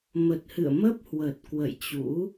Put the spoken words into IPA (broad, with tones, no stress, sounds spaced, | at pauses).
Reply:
m ə˨˩ t̚ h ɨ̰˧˨ ə̯ m ə˦˥ p̚ h w ə˨˩ t̚ k w ə̰˧˨ j t͡ɕ ṵ˧˥